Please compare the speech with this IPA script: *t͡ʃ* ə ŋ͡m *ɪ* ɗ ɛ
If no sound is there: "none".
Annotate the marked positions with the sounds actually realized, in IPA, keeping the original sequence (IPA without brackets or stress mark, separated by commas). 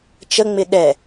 t͡ʃ, ɪ